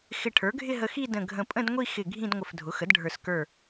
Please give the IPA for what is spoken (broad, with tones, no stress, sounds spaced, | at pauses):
x ɪ˧˩ ʈʰ ə˞˩˥ ɡʱ ɪ˥˧ ɦ ə˧ x i˥˧ d ə̃˧˩ ɡʱ ə̃˧˩ pʼ ə̃˥˧ d ŋʷ i˥˧ x ɪ˧˩ ɡʱ ĩ˥˧ d ŋʷ ə˧˩ f dʱ ʊ˩˥ x ə˩˥ d ɖʱ ə˞˧˩ s k ə˞˧˩